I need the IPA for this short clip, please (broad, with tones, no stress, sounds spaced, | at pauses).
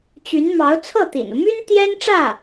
t͡ɕ y˧˥ n m ɑ˧˥ ʊ̯ t͡sʰ ɤ˥˩ t̪ ḭ˨˩ n u˦ m y˥ n t̪ j ɛ˥ n ʈ͡ʂ ä˥˩